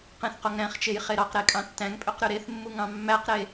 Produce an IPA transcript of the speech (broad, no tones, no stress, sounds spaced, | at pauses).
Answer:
q ẽ θ q o ŋ ɾ æ̃ χ t͡ʃ e j χ e ɾ ɑ q ɾ e kʼ ɑ̃ tː æ̃ ŋ pʼ ø q ɾ y ɾ e θ mː u ŋ ɑ̃ mː æ q ɾ e